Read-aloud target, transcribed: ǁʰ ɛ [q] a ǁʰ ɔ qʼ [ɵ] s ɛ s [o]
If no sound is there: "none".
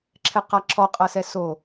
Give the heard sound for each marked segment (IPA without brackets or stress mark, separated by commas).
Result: q, ɤ, o